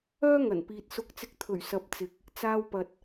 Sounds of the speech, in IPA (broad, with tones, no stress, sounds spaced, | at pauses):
œː˥ ŋ ɐ˨˩ n p iː˨ t̚ s ʊ˧ k̚ t͡s ɪ˧ k̚ t̪ʰ ɵ˨˩ ɥ s ɐ˨˥ p̚ t͡s ɪ˨ k̚ | t͡s aː˧ w p ɐ˨ t̚